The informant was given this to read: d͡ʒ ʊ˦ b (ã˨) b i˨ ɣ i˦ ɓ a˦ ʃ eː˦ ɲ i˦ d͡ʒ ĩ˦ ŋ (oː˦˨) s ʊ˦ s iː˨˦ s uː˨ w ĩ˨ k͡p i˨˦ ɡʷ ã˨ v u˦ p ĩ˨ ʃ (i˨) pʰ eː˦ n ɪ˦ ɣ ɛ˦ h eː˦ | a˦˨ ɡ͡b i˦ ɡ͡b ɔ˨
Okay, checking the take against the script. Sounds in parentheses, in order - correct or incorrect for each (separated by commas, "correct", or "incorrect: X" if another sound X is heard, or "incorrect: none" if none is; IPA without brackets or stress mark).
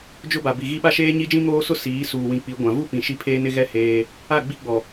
incorrect: a˨, incorrect: oː˦, incorrect: i˦